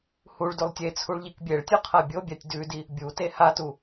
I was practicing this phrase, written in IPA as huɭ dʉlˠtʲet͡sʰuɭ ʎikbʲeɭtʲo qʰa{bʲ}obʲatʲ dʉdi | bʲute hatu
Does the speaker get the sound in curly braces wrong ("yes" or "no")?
no